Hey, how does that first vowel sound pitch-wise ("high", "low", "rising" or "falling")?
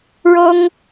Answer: high